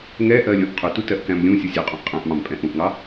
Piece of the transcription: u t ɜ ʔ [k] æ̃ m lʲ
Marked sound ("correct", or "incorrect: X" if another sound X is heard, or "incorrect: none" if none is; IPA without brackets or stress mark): correct